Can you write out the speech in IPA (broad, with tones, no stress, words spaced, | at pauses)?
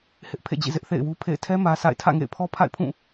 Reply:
hɪ˦ʔ pʰḛ˦˨d͡ʑḭ˦˨ zɪ˦ʔ θḛ˦˨ɪ̯wu˦pʰḛ˦˨ɪ̯ tʰɛ˦ mä˦sʰa̰˦˨ɪ̯ tʰä̰˦˨ŋḛ˦˨ɪ̯pʰɔ˦ pʰa̰˦˨ɪ̯pʰũ˦˨